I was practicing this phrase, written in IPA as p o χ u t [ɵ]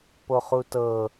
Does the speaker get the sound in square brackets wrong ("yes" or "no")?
yes